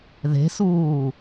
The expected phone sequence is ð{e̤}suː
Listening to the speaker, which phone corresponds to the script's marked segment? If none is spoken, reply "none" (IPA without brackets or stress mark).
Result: e̤